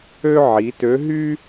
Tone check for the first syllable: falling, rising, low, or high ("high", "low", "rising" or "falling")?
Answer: high